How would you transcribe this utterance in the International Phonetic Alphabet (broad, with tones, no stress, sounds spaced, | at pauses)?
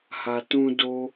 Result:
h a˨ t ũ˧ d o˦